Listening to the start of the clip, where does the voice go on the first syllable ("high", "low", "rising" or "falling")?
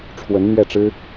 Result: rising